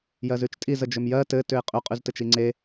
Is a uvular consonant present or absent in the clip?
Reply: present